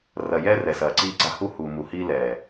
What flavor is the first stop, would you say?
click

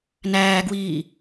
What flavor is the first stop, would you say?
plain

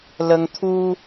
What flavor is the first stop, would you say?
aspirated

